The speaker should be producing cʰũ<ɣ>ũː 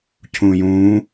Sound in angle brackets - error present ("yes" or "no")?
yes